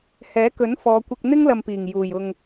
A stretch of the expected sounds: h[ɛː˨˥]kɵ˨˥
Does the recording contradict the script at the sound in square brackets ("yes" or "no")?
no